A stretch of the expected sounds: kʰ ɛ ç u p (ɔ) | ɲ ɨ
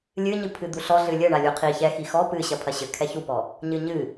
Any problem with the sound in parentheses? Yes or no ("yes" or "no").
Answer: no